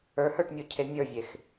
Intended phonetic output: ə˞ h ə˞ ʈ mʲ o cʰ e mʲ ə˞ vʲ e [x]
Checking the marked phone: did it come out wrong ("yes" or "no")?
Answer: no